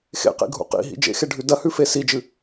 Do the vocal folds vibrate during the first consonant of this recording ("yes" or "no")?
no